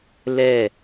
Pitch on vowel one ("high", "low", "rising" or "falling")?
falling